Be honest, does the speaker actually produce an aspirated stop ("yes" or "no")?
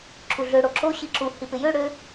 yes